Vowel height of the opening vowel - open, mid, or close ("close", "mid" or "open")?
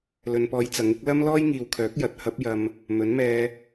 mid